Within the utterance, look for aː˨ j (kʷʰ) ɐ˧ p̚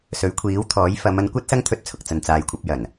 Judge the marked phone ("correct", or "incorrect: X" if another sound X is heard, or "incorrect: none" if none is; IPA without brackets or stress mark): correct